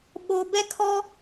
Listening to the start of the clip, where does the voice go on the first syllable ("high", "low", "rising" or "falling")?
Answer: low